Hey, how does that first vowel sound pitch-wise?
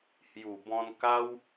low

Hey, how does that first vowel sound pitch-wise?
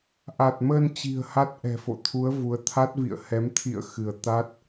low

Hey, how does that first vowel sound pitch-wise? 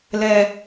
low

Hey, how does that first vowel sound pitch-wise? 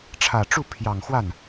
low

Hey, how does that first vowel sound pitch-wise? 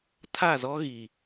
falling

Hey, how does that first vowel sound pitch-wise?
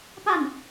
falling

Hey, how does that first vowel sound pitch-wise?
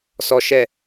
low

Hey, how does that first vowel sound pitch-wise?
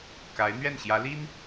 rising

